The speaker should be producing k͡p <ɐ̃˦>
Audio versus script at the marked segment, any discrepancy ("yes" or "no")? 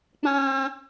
yes